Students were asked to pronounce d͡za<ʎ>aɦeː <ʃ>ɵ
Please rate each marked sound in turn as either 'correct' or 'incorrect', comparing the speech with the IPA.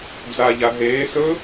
correct, incorrect: s

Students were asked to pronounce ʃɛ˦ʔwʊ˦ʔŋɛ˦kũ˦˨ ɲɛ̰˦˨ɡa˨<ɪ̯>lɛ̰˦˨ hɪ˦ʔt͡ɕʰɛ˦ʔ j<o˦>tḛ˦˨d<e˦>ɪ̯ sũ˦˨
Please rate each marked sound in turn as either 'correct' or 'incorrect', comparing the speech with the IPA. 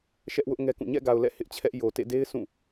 incorrect: ʊ̯, incorrect: o˨, correct

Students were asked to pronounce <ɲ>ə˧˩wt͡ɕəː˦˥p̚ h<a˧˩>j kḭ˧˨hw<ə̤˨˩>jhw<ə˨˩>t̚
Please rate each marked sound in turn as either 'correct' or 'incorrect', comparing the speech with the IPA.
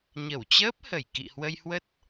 correct, incorrect: ə˧˩, incorrect: ə˧, incorrect: ə˦˥

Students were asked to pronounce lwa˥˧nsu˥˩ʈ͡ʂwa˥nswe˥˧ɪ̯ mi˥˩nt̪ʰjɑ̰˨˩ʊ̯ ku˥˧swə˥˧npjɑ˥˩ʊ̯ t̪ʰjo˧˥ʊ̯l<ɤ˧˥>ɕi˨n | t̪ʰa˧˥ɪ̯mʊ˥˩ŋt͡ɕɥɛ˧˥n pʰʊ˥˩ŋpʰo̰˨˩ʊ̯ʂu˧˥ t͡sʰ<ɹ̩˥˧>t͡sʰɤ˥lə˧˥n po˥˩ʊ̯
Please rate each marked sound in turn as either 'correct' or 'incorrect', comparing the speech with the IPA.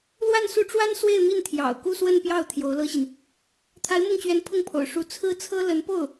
incorrect: ɤ˥, incorrect: ɹ̩˥

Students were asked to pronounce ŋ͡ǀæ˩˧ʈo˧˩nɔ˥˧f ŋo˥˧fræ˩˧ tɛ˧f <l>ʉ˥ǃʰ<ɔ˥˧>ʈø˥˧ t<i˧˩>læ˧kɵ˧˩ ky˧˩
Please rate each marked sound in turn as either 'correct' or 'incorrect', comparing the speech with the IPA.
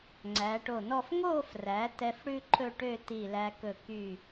incorrect: ɽ, incorrect: ɵ˥˧, correct

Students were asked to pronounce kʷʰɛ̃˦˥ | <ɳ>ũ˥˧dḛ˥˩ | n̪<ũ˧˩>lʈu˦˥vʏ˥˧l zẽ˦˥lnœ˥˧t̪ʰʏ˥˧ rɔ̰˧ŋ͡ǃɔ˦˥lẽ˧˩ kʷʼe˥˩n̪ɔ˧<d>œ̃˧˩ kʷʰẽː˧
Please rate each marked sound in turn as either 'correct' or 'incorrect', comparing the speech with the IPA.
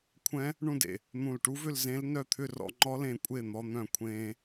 correct, correct, incorrect: n̪

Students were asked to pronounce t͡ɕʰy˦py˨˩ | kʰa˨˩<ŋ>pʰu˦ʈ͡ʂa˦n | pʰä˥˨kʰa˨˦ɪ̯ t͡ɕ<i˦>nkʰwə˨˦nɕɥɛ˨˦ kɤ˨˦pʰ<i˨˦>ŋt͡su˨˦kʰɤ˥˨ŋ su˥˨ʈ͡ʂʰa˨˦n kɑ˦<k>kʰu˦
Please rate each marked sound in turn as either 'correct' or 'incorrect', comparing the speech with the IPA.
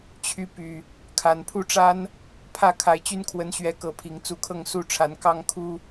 incorrect: n, incorrect: y˦, incorrect: i˨˩, incorrect: ŋ

